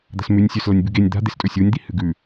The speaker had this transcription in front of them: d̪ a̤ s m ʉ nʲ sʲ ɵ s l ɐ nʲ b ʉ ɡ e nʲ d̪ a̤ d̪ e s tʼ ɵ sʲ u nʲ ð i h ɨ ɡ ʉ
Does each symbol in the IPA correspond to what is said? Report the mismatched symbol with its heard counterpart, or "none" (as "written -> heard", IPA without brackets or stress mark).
ð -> d̪